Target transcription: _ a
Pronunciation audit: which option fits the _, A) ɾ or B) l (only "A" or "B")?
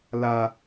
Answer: B